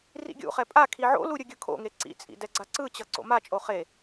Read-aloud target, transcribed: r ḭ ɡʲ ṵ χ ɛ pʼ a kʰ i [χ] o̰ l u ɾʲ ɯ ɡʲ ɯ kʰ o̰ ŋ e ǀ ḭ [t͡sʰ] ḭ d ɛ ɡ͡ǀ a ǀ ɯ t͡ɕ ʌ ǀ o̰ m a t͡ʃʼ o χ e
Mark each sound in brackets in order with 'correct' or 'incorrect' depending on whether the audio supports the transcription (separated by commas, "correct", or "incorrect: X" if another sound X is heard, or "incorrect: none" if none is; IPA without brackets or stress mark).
incorrect: ʕ, incorrect: t͡sʼ